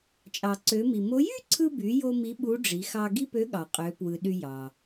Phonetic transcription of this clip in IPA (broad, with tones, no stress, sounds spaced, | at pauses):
t͡ʃʼ ɑ˩ ǀ ø˩˧ m i˩ m o˧˥ j y˥ ǀʰ ɯ˧ b y˩˧ j o˥ m i˧˥ ɓ u˧˥ ɖ͡ʐ i˩˧ x ɑ˧ ɡ i˥ p ø˧˥ ɠ ɑ˩ qʼ ø˩˧ p w ɯ˩ ɗ y˧ j ɑ˩